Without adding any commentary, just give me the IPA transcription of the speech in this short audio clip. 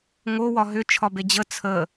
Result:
ŋ o w ɒ ɦ ʏ t͡ʃʰ ɒ b e d͡ʑ ə t͡sʰ ə

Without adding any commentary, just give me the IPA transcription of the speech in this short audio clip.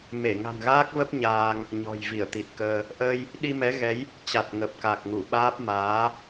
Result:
m e˧˩ ŋ a̤˨˩ n ɣ aː˦˥ k̚ v ə˦˥ p̚ ɲ aː˧ ŋ | ɲ ɔ̤˨˩ j v i˧˩ ə̯ t̪ i˨˩ t̚ k əː˧ | ʔ əː˧ j | ɗ i˧ m ɛ˨˦ ɣ ɛ˨˦ j | t͡ɕ a˨˩ t̚ ŋ ə˨˩ p̚ k a˨˩ k̚ ŋ u˧˩ ɓ aː˦˥ p̚ m aː˨˦

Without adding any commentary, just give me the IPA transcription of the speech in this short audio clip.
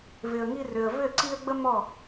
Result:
v ɪ˨ ə̯ ŋ i˧ r ʏ˨ ə̯ v ʏ˦˨ ǀ i˧ ə̯ ɡ͡b ə˦ m ɔ˦˨

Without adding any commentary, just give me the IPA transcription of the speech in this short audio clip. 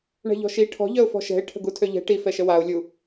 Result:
ɳ ɛ̤ ʎ ɔ̤ ʃ i ʈʰ ɔ̤ ʎ œ ʊ̯ f ɔ̤ ʃ ɛ̤ ɪ̯ ʈʰ ə̤ ɡ u tʰ ø ʎ ɛ̤ ʈ i f ɛ ʃ ə w a ʊ̯ lʲ u

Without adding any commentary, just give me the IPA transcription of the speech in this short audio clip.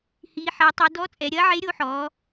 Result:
h iː˩˧ ħ ɐ˩˧ tˤ i˩˧ d ɔ˧˥ t͡sʼ ɛ˩˧ ɾʲ ɐː˧˥ ʕ e˧˥ ɾʲ o˧˥ ħ ɔː˩˧

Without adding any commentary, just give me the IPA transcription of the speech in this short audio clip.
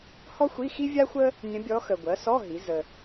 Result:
h ɔ˥ xʷ i˧˥˧ x i˥ vʲ a˥ xʷ ə˥ | nʲ ə̃˧˥ bʲ ɔ˧˥ x ə˨ ɡʷ ɜ˩˥ s ɔ˧˥˧ ɦ i˩˥ z ə˨

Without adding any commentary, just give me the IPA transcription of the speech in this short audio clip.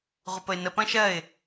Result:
ʁʷ ə p ə ɪ̯ n ə p ɐ̃ ʃ ɜ ɪ̯

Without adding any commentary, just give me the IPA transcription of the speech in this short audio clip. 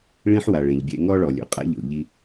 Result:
ɭ ĩ˥ ħ w a˩ ɭ ẽ˩ ʎ bʲ ɛ̰˧ ŋ ɔ˥ ɭ ɔ˩ lʲ o̰˩ qʼ a̰˥ ʎ o̰˩ ʎ i˧

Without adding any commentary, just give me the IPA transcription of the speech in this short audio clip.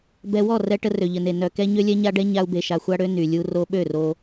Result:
b ɛ˧ w ɔ˦˨ r ɛ˧ ʈ ə˧ r ø˨ ʎ ə˨ n e˨ n œ˨ k ɛ˧ ɲ ø˦ lʲ ɛ˦ ɲ a˦ ɖ ɛ˦ ɲ a˦ u̯ b e˧ ʃ a˨ xʷ a˧ ɽ ø˧ n y˨ lʲ u˧ r o˧ ɓ ø˦˨ r o˧

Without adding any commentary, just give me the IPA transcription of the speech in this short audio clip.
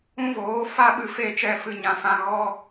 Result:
ũ˦ v oː˨˦ f a˦ ɓ ɨ˧ f e˧ t͡ʃ ɛ˦ f ɨ˧ ɲ ã˨ f ã˧ ɣ ɔ˦

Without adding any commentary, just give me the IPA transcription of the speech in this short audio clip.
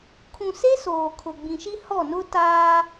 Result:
kʰ ũ˨ s e˦ s oː˨ kʰ ʊ˨ ɡ͡b ĩ˨ ʃ i˦ h ɔ˦˨ n ʊ˦ t aː˦

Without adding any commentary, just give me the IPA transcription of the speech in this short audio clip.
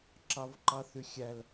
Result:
ǁ ɑ v ǃ ɑ θ y xʲ æ l

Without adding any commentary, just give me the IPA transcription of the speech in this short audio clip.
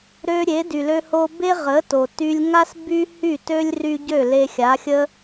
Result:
ɾ ø˧ ɾʲ e˩˥ d y˩ l ø˧ h o˧ b e˥ ʁ ə˩˥ t o˩ t y˧ lʲ ŋ a˥ s b y˥ h y˥˩ t ø˥ lʲ r y˧ ɟ ø˥˩ l e˧ xʲ a˩˥ xʲ ə˥

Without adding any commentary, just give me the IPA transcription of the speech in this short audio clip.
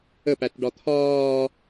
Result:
ə p æ t ɖ ɒ t̪ʰ ɒː

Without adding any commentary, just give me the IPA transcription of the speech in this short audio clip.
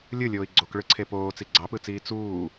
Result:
lʲ ɯ lʲ oː i̯ ɡ͡ǀ o k ɭ ɯ ǀʰ e p oː t͡s i ɡ͡ǀ ɑ p ɯ t͡s iː t͡s uː

